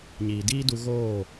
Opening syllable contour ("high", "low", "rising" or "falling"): low